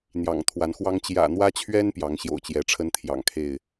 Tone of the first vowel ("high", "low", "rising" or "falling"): low